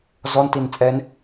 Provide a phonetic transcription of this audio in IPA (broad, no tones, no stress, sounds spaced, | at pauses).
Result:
z ɔ n t i n t͡sʼ ɛ n